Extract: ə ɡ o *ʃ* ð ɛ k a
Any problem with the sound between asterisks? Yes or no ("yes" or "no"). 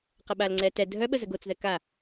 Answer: yes